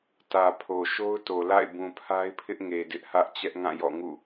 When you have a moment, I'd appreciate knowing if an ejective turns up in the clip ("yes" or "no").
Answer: no